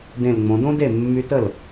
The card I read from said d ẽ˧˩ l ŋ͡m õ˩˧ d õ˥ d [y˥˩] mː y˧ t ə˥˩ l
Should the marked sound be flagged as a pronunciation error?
yes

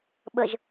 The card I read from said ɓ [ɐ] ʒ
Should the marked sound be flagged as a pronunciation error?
yes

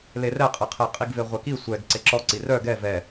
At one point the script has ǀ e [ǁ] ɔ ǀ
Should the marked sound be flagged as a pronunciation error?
no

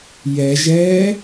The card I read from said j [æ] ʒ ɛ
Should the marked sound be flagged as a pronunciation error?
yes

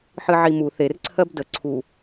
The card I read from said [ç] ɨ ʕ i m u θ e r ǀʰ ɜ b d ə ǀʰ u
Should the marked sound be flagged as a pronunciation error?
yes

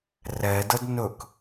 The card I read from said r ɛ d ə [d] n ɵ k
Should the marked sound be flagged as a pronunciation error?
no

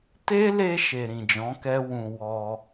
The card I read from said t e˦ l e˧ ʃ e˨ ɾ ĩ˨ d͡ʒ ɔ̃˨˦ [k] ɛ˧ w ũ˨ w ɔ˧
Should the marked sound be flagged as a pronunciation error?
no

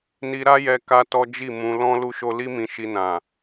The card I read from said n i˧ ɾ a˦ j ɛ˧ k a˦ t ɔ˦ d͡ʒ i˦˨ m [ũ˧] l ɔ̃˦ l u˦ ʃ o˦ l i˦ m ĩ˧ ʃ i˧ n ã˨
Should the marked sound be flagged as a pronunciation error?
no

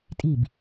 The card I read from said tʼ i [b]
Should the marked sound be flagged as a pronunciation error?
no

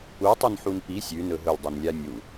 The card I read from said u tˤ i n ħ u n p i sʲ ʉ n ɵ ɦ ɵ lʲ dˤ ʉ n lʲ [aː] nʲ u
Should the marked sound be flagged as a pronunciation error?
yes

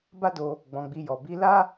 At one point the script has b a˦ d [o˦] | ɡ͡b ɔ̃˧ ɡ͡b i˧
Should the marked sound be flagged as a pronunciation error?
yes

